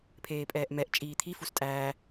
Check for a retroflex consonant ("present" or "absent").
absent